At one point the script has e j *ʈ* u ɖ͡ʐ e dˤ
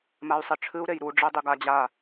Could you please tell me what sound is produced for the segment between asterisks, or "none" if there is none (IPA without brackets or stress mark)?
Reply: ɾ